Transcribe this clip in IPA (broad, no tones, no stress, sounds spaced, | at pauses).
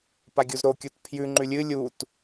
p a ɡʲ u z ɾ o kʲ u t pʰ j ʉ ŋ͡ǃ ʉ lʲ ɨ lʲ u t